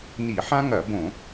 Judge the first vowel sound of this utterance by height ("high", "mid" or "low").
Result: high